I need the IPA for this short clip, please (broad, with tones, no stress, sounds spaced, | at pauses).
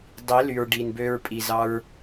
dˤ i˨˦ l y˨ ɹ ɖ i˨ n b ø˧ ɹ pʼ i˨ z ɑ˧ ɹ